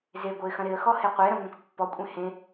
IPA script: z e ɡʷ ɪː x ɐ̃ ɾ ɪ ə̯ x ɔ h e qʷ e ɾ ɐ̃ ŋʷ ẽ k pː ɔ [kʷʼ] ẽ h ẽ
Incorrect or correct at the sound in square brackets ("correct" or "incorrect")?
correct